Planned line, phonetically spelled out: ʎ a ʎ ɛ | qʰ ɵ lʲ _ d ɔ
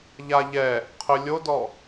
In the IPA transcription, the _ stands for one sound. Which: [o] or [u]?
o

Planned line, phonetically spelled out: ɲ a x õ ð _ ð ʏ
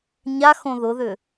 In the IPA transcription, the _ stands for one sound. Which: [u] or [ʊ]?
ʊ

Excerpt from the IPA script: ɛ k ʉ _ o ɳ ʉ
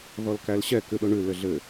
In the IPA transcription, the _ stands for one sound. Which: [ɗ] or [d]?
ɗ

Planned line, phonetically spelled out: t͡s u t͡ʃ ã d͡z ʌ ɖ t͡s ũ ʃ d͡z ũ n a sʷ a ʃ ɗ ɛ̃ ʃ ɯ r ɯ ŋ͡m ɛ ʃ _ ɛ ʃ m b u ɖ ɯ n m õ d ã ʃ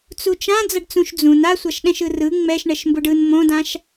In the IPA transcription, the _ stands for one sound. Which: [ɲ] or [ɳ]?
ɳ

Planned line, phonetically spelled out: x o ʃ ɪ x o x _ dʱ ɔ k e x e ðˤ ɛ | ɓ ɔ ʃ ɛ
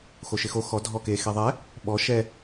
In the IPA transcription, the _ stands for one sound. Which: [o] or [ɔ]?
ɔ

